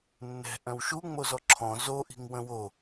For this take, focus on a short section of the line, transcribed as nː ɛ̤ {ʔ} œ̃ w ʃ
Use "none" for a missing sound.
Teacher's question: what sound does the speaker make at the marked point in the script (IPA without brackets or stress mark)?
ʔ